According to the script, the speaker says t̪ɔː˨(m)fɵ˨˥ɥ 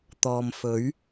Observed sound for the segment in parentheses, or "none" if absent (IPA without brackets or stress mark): m